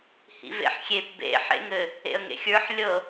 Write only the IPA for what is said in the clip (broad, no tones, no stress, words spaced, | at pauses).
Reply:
hḭvḛħxʲep bḛ ħḛŋɘ | ḛə̯ŋḛxʲə˞ħ lʲɤ